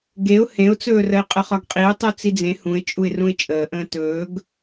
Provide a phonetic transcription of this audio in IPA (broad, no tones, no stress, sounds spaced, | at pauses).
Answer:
ɡ e ʊ̯ h ẽ ʊ̯ t͡s ɵː r ə ɪ̯ qʼ ə χ ɒ ɡ qʼ i ʊ̯ tˤ u t͡s i d͡z ẽ h ũ ɪ̯ t͡ʃʼ u ɪ̯ r ũ ɪ̯ t͡ʃʼ əː ʔ ə̃ː t ɵː ɡ